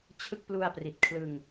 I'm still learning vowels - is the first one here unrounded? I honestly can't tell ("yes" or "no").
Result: yes